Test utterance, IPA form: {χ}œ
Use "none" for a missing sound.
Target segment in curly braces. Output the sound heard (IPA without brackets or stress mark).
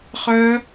χ